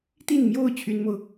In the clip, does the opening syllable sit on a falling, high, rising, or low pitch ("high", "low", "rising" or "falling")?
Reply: falling